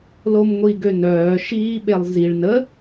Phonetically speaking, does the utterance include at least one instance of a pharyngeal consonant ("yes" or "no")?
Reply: no